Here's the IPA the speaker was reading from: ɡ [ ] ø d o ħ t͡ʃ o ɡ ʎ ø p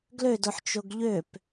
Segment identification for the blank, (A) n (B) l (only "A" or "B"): B